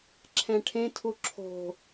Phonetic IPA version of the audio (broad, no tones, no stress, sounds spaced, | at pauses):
ǁʰ ɛ̃ ʈʰ ẽ tʰ u ǁʰ o̤